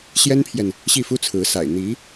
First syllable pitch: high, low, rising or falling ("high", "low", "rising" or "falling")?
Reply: high